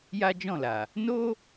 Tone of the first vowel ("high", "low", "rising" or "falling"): high